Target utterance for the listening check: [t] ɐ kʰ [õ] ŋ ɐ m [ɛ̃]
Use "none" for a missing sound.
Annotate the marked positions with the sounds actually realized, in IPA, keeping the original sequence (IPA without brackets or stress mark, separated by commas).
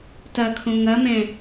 t, õ, ɛ̃